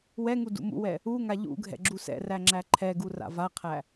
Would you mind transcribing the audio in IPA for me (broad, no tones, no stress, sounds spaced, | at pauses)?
w ɛ ŋ u d ṵ m ṵ w ɛ | u ŋ a ʎ ṵ ɡʱ ɛ̰ ɡ͡ǁ u s ɛ̰ r æ ŋ͡ǁ æ ǃʰ ɛ ɡ u r a̰ v a qʰ æ